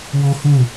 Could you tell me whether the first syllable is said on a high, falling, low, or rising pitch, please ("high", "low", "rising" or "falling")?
high